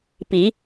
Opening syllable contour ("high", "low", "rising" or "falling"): rising